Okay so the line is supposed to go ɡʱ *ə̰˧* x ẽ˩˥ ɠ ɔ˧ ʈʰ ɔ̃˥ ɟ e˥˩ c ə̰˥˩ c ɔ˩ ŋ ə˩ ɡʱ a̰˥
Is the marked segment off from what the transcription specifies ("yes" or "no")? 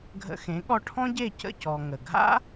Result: no